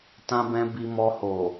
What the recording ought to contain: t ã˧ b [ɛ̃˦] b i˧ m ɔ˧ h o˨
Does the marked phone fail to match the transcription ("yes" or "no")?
yes